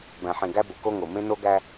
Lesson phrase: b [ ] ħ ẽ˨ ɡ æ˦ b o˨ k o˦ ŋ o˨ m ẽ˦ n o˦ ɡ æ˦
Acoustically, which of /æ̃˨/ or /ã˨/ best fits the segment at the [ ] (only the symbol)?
æ̃˨